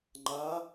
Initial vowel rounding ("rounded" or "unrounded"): unrounded